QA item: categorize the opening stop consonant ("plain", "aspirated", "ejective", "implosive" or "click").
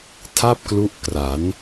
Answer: aspirated